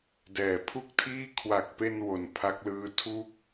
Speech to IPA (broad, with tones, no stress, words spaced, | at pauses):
dɛː˨˩pʰu˥˩k̚tʰiː˥˩ kʰwa˨˩k̚pe˧n wo˨˩npʰa˦˥k̚lɯː˦˥ tʰu˥˩k̚